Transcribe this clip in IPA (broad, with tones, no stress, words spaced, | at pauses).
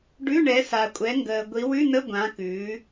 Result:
ɖʉ˧˥˧ ɳɛ˨˦sa˨kʷʼɛ˨˦ŋɡəː˨ ɡʷi˨˦wʉ˧˥˧nə˧˥˧ ɡʷã˨˦kʉː˨˦